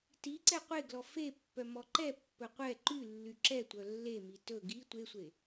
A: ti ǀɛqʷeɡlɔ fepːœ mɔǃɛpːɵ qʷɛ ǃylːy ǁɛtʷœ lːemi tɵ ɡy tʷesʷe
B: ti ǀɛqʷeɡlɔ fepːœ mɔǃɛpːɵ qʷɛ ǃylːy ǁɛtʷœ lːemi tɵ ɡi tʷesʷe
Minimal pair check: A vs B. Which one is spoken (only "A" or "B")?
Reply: B